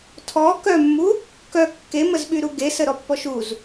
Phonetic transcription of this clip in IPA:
tʰ ɔ k œ mː u | k œ kː e m ə z ɓ y ɾ u ɡ e s ə ɾ ɔ pː ɔ ʃ u z

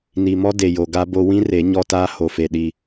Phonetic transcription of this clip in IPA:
n i˨ m ɔ˦ d e˨ j o˨ ɡ a˦ b o˦ w ĩ˦ r e˨˦ ɲ ɔ˦ t aː˦ h o˨ f e˨ ɗ i˦

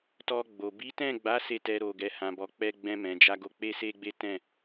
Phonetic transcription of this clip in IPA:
t ɔ˧ ɡ͡b o˨ b i˨˦ t ɛ̃˦˨ ɡ͡b a˨˦ s e˦˨ t ɛ˧ ɾ o˨ ɡ ɛ˨ h ã˨ b ɔ˨ k͡p ɛ˧ ɡ͡b ɛ̃˧ m ɛ̃˨ d͡ʒ a˧ ɡ o˧ k͡p e˦ s e˦ ɡ͡b e˦ t ɛ̃˦˨

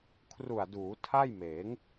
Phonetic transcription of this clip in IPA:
kʰ r u˨˩ a̯ d uː˩˦ tʰ a˥˩ j m eː˩˦ ŋ

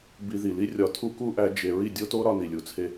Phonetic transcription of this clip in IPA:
b i˧ ð i˨ l i˦ rʲ ɒ˧ tʰ u˦ k u˦ ʔ æ˧ d͡ʒ e˧ ɹ i˦˨ dʲ o˦ t o˦ ɾ ɒ˧ n i˨ lʲ u˨ t͡sʰ e˧

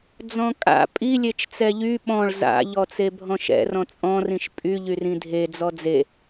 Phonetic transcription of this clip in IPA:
d͡z ɔ̃ kʼ a̰ pʼ i lʲ e t͡ʃ t͡s ɛ ʎ y ɓ ɔ̃ ɭ z a̰ ʎ ɔ t͡s e bʱ ɔ̃ ʃ ɛ̰ r ɔ̃ t͡sʼ ɔ̃ r ĩ ʃ pʼ y ʎ y r ĩ dʱ e d͡z ɔ d͡z e

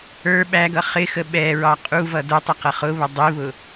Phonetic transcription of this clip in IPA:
ə˞ ɓ æ ɡ ʌ χ ɪ x ə ɓ ɛ ɹ ɑ qʼ u v ʌ d ʊ tˤ ɛ q ʌ χ ʊ β ə dˤ i β ʊ

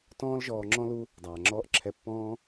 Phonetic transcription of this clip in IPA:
t ɔ̃ː˦ l ʒ ɔː˧ ŋ͡ǁ ɔ̃˦ l u˦ | dˤ aː˨ ŋ͡ǁ ɔː˦ ʔ ǁʰ ɛ˦˨ pː ɔ̃ː˦

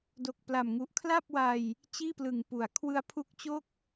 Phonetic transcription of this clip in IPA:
d o˨˩ k̚ p l a˨˩ m ŋ u˨˩ ʔ kʰ l a˥˩ p̚ w a˧ j | t͡ɕ iː˥˩ p l ɯ˨˩ ŋ p u˩˦ a̯ kʰ w ɯ˦˥ a̯ pʰ u˦˥ k̚ t͡ɕ o˥˩ k̚

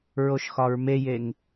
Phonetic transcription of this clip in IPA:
ɹ o ʃ x ɒ ɹ m e j e ŋ

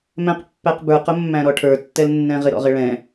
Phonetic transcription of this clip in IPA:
m ɛ̃ q pː æ q b ə˞ q ʊ mː æ̃ ɾ ɔ ʈʰ ə˞ tː ɛ l nː ɛ̃ ʁ ɪ ɾ ɔ̰ ʁ ɪ ɭ ɛ̃

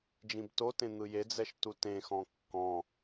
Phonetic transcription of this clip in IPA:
d͡ʒ ĩ b t o t ẽ n̪ ɯ j e d͡z ɛ ʃ t u t ẽ x ɔ̃ kː ɔ̃

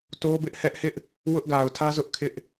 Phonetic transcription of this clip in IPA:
t o˦ b ɪ˦ ʔ h ɛ˦ ʔ h ɪ˦ ʔ | w ʊ˦ ʔ ɡ a˨ ʊ̯ tʰ ä˦ z ʊ˦ ʔ kʰ ɪ˦ ʔ

